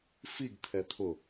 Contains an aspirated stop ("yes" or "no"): yes